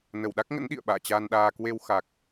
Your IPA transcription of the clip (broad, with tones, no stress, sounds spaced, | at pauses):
n ə˧˩ w ɗ a˦˥ k̚ ŋ ə̰˧˥ n ɗ ḭ˧˨ ə̯ ɓ a̰ː˧˨ t͡ɕ a˧ n ɗ aː˧ k w e˧ w x a˨˩ k̚